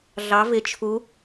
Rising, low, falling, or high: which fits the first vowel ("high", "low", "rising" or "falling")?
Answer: rising